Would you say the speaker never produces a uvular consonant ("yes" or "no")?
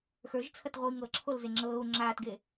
no